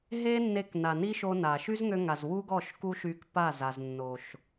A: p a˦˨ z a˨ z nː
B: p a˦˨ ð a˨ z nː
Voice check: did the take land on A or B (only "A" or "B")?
A